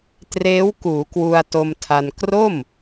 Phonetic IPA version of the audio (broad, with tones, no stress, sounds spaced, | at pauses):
t r eː˦˥ w k uː˩˦ k w u˧ a̯ t o˧ m tʰ a˧ n k r o˥˩ m